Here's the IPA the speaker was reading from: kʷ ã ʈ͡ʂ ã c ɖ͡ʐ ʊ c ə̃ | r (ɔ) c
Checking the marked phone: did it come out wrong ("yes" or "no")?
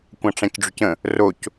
yes